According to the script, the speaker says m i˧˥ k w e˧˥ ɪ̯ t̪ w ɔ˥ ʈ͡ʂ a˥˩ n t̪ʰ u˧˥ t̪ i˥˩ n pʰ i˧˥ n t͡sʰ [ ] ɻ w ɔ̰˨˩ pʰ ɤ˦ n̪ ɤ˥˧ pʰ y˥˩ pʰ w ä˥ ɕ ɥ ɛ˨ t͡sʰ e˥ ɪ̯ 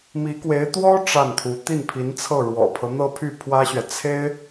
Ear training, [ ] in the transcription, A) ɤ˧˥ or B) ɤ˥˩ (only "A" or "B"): B